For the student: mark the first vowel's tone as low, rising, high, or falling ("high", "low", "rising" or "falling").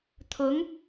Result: rising